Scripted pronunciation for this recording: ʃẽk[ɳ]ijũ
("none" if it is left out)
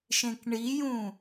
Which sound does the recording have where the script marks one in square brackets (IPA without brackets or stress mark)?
ɳ